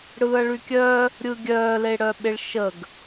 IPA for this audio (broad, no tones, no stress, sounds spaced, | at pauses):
ɽ ɯː ɐ̯ ɭ y kʲ œː | ɾʲ ɯ ɡʲ œː l e ɽ œ ɓ e ɭ ʃ ə ɡ